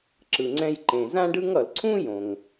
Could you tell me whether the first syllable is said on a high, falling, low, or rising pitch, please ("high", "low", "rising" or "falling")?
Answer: low